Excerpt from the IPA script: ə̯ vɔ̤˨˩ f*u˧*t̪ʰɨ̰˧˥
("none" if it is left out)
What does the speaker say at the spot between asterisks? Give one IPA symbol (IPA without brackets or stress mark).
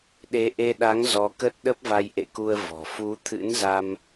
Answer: u˨˦